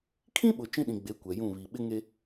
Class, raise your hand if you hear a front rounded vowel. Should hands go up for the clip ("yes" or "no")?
no